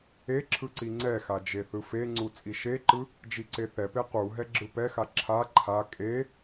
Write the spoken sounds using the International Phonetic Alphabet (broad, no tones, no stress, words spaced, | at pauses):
e ǁʰɯǀiŋ͡ǀɛxa d͡ʒeθɯfeŋ͡ǀu t͡sʼiʃeǃɯ | d͡ʒiǀeθɛpe qu ɦɛɡ͡ǁɯpɛxa ǁʰa ǃʰa kʼe